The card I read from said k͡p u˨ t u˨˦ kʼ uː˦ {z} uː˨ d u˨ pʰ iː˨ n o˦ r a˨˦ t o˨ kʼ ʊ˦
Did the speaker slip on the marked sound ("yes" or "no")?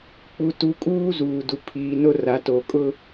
no